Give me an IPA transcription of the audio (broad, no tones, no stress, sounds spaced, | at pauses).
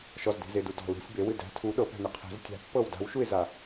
ʃ ɔ z d e̤ z e d u d ɔ̤ l ṳ sʲ b e w ɨ d æ̤ tʰ u ɗ ɤ p æ̤ n ɨ qʰ e̤ z tʲ a̤ pː ɤ w d a̤ w ʃ u ɪ̯ z a